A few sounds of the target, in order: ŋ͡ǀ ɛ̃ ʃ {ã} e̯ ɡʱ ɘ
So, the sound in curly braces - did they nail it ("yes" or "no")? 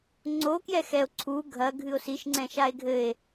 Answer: no